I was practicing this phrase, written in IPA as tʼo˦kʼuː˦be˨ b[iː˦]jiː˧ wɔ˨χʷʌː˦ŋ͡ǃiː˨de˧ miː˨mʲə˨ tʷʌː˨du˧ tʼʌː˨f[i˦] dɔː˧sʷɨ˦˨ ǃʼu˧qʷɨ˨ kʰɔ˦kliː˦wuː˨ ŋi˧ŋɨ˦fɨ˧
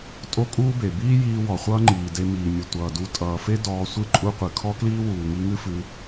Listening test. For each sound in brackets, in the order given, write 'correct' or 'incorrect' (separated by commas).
correct, incorrect